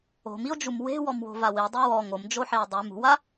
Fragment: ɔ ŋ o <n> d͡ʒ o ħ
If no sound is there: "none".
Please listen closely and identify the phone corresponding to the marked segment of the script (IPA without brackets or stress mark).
m